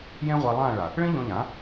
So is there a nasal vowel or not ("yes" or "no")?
yes